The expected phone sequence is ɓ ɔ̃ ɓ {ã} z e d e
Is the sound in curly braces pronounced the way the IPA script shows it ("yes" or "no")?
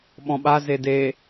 no